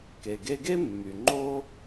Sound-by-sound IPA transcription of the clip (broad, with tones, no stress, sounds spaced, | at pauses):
k e˩ ɡ e˧ ɡ e˥ mː y˩ ŋ͡ǃ o˥